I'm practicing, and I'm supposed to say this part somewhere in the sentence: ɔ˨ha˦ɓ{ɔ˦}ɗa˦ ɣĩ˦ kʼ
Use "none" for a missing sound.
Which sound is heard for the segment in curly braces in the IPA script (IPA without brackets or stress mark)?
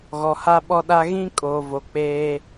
ɔ˦